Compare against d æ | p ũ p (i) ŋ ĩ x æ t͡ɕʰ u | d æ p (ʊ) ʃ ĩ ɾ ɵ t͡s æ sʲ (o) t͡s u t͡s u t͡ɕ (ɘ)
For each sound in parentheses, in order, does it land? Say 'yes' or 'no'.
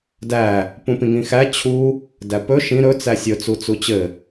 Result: no, no, no, yes

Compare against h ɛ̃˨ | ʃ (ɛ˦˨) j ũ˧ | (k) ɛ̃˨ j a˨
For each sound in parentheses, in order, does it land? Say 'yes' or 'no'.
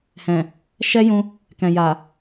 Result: no, yes

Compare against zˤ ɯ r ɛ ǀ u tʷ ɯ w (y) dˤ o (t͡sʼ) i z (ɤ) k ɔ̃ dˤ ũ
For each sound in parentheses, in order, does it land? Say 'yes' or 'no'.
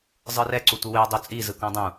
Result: no, yes, no

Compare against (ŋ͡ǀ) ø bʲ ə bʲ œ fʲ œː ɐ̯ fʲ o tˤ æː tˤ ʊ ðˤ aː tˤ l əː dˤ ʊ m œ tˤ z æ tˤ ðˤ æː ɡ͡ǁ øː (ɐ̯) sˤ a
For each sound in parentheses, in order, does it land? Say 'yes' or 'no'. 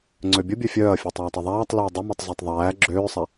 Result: yes, no

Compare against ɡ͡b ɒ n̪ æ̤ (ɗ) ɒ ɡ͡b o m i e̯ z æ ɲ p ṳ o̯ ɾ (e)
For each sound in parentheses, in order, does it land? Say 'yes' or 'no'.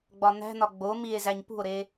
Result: no, yes

